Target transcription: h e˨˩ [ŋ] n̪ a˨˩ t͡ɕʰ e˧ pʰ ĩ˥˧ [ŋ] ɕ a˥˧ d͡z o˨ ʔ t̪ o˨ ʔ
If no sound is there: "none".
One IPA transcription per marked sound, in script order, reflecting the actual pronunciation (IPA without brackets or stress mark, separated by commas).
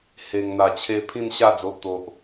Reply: ŋ, n